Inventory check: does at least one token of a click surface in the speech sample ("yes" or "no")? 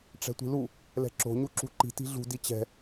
yes